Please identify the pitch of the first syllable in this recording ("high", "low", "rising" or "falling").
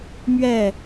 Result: falling